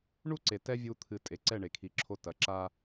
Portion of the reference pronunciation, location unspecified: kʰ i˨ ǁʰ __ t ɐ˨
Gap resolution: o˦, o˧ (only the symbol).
o˧